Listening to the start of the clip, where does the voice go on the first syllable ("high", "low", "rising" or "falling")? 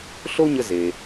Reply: high